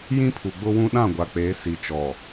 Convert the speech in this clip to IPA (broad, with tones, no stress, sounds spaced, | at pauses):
j ĩ˦ pʰ u˨ ɡ͡b ʊ˦ w ũ˦ ɗ ã˦˨ ɡʷ a˨ k͡p eː˨˦ s i˨ t͡ʃ ɔ˨